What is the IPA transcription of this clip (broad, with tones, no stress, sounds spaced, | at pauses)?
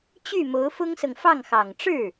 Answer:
t͡ɕ y˥˩ m o˧˥ ʊ̯ f ʊ˥ ŋ s ɤ˨ ŋ f ɑ˥˩ ŋ x ɑ˨˩ ŋ ʈ͡ʂ ɻ̩˥˩